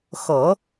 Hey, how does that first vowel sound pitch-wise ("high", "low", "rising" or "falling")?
low